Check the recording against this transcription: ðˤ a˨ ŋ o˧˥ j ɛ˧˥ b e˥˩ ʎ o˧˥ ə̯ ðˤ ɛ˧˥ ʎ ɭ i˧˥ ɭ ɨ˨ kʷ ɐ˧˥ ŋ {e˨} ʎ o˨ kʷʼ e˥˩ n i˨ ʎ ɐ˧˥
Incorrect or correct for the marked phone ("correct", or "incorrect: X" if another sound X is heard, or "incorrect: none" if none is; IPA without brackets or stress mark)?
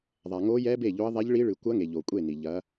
correct